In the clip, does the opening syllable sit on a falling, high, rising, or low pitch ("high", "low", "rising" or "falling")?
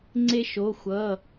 high